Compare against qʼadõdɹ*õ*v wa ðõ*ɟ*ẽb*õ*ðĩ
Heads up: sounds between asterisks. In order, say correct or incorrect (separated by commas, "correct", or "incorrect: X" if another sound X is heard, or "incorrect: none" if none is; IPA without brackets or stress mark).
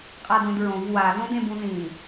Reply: correct, incorrect: d, incorrect: ũ